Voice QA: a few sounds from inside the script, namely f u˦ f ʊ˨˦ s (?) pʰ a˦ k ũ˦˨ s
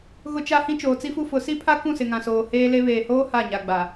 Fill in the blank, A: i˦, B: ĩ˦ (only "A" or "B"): A